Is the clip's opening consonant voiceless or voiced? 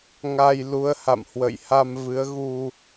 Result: voiced